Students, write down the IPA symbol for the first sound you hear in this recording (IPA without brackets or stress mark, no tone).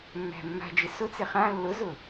mː